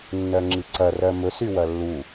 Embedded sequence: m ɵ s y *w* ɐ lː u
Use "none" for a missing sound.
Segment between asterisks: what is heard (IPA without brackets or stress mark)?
w